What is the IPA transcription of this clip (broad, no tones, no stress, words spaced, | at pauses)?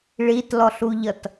ɭitlɔɬuʎʌt